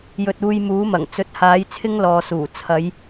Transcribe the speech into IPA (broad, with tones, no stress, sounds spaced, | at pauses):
j ɵ˨ t̚ uː˧ j m uː˨˥ m ɐ˨˩ ŋ t͡s ɵ˨˥ t̚ h aː˨˧ j t͡sʰ ɪ˥ ŋ l ɔː˨ s uː˨˩ t͡sʰ ɐ˨˧ j